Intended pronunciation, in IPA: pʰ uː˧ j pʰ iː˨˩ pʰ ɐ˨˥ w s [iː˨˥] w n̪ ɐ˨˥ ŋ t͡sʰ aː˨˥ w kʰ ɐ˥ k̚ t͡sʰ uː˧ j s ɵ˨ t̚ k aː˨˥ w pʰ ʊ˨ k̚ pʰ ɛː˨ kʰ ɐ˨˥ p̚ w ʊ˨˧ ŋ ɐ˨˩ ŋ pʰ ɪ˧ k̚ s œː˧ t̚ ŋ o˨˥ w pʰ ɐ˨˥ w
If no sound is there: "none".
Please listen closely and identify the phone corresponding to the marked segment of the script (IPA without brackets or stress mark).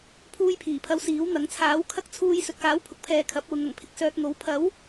iː˨˥